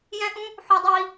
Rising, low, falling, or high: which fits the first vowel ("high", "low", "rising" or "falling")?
high